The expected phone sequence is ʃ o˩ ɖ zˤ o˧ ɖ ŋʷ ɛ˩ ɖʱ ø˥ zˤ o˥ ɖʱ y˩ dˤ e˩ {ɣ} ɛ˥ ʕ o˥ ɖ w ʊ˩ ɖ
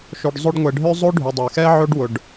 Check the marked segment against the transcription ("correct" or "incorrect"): incorrect